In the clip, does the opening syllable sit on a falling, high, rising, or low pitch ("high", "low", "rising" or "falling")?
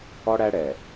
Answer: high